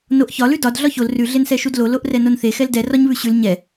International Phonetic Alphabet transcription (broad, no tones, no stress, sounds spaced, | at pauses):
n o ʔ ç ɒ l ʉ d ɒ d ɮ ɒ ç o l r ʉ ɮ e n s ɛ ʃ u d l o l o ʔ r ɛ n o n θ e x ɛ l d ɛ r ɒ ɲ β ʉ ɕ ʉ l ɲ ɛ